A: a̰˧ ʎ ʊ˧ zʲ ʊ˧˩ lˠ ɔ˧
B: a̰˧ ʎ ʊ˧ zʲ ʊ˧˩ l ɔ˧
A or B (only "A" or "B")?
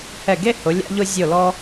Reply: B